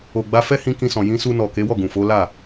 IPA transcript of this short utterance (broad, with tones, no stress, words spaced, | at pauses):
o˨ɡ͡ba˧ fɛ˦hĩ˧ kĩ˧sɔ̃˨ jĩ˧su˧nɔ˨ ke˨˦wɔ˦˨ɡũ˨ fo˨˦la˦˨